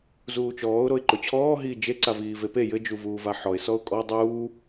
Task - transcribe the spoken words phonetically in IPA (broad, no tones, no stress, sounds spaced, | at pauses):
z uː t͡ʃ ɔː ʊ̯ ɾ o ɪ̯ ǃ o t͡ɕʰ ɔː ɦ iː d͡ʒ e ǀ a v iː v e p e j ɘ d͡ʒ u v uː v a ħ ɔ ɪ̯ s ɔ ʊ̯ kʼ ɔ dˤ uː